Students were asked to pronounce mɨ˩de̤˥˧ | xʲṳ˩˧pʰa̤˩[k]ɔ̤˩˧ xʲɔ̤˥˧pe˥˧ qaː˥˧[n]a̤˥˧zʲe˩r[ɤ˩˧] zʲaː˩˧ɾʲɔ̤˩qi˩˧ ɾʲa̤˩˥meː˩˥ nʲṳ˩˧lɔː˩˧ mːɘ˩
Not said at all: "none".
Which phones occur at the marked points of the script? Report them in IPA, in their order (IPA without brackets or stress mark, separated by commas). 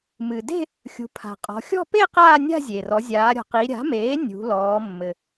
qʼ, nʲ, ɔ˩˧